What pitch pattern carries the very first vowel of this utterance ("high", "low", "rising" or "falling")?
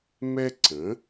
high